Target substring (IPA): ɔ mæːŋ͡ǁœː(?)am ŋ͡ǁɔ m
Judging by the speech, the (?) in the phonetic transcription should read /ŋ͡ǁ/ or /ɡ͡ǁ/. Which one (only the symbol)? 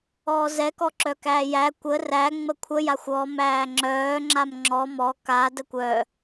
ŋ͡ǁ